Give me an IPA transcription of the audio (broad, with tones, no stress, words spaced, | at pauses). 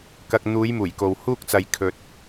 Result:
kɐ˨k̚n̪uː˨˧j muː˨˩jko˨w huː˥k̚t͡sɐ˨j kʰɵ˨t̚